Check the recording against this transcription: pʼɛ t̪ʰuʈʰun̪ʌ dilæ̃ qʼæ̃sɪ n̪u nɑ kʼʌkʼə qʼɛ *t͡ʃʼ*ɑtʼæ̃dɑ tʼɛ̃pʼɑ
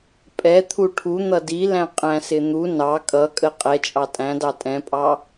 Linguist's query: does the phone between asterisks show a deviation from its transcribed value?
no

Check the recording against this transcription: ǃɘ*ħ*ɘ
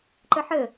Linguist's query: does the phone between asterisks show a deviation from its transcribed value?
no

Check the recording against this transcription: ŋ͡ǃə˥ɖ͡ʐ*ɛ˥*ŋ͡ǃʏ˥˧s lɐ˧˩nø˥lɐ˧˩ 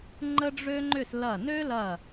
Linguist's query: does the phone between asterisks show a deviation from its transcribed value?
yes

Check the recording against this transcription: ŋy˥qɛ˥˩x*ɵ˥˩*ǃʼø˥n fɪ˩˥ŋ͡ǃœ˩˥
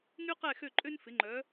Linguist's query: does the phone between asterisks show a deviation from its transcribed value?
yes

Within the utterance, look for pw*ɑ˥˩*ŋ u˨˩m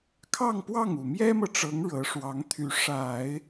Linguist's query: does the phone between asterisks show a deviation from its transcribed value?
no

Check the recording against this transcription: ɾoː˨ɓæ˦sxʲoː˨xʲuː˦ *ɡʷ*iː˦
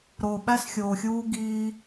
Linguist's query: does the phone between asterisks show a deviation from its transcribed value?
yes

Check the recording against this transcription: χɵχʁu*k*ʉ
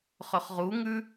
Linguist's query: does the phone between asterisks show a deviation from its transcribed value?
yes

